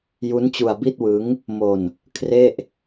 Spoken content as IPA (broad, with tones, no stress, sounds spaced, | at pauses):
j u˦˥ n t͡ɕ u˧ a̯ b i˥˩ t̚ w ɯ˦˥ ŋ | m o˧ n | kʰ r e˥˩ ʔ